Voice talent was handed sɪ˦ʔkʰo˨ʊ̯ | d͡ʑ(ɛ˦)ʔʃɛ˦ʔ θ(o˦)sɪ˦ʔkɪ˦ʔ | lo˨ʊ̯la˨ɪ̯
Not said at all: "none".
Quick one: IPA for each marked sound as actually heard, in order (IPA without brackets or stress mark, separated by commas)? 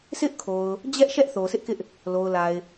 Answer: ɛ˦, o˨